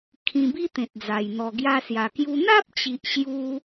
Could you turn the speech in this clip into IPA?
kʰ ĩ˧ b i˦ t̪ ẽ˨ t̚ d͡z a˨˩ j n̪ ɔ˨˩ ɡ j a˧ s j a˨˩ k j u˧ n̪ a˦ p̚ t͡ɕ i˨ ʔ ɕ j u˧

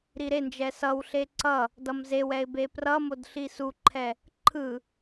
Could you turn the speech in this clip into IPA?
ɾ i ɾ e n d͡ʒ ɛ s ʌ w ɬ e ǀ ʌ | d ʌ m z e w ɛ ɪ̯ b e p r ʌ m o d ɬ i s u ǃʰ ɛ | ǃʰ ɯ

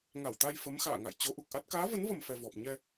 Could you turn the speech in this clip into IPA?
ŋ a˧˩ w t̪ a˧ j f ə˨˦ m x a̰ː˧˨ ŋ a̰˧˨ j t͡ɕ o˨˦ ʔ u˨˩ k̚ ʔ a˦˥ t̚ k aː˨˦ v ə˨˦ n v ə˨˩ m f ɛ˨˩ v ɔ˨˩ p̚ ɲ ɛ˧

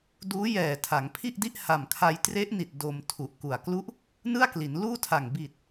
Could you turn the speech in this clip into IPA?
d uː˦˥ j ɛː˨˩ tʰ a˩˦ ŋ pʰ i˥˩ ʔ d i˥˩ ʔ h a˨˩ m kʰ a˧ j t r e˦˥ ʔ n i˨˩ t̚ d o˧ m tʰ u˨˩ ʔ k u˨˩ a̯ k l u˥˩ ʔ | n ɯ˥˩ a̯ k l i˩˦ n l uː˥˩ tʰ a˨˩ ŋ b i˨˩ t̚

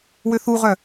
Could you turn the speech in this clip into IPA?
w ø θ u ʁ œ

